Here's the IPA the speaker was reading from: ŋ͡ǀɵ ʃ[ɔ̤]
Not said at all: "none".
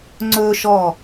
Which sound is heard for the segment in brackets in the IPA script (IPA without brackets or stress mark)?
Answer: ɔ